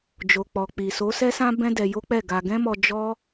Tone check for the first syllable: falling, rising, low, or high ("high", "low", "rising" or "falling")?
low